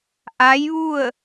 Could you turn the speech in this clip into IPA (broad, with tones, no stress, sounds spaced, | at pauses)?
ʔ a˧˥ j ʋ u˥˨ ə̯